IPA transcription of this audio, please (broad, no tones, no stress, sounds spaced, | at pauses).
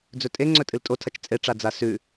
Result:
d͡z ɵ tʼ e ŋ͡ǀ ɵ tʼ ɨ l tʼ o tʰ ɐ t͡ʃ t͡sʼ e ʈ͡ʂ a d͡z a s ʉ